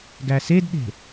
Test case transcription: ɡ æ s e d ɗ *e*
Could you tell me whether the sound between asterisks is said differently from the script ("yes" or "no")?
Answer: yes